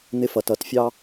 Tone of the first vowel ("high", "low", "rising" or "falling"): high